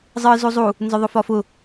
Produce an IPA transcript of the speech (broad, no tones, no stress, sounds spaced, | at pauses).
zˤ ɨː z u zˤ u | n z ʊ ðˤ ʊ f ɒ f ʊ